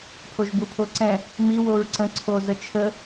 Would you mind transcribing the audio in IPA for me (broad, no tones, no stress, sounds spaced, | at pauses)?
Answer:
pʰ o ʒ b u pʰ o ǀ ɛ̃ | m i w o ɹ ǀ ə̃ ǀʰ o z ə t͡ʃʰ ə